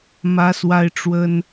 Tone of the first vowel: high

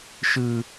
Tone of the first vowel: high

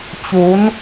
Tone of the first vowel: rising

